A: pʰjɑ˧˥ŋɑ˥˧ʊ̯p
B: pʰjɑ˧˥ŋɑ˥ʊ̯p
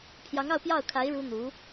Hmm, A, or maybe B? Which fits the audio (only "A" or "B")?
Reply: A